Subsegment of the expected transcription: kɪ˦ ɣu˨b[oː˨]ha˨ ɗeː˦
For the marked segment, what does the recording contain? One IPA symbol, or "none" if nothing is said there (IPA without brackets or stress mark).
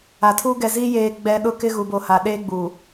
o˨